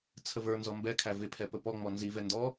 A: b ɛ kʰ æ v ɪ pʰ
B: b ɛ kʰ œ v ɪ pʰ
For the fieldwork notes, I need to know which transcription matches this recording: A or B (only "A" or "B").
A